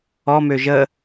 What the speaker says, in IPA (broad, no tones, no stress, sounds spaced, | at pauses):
ɔ m ø ʒ ə